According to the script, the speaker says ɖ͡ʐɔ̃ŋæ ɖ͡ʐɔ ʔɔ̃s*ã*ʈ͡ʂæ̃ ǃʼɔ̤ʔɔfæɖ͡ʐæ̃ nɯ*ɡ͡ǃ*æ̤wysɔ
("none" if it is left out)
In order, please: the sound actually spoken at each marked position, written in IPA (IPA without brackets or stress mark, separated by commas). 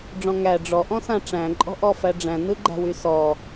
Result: ã, ɡ͡ǃ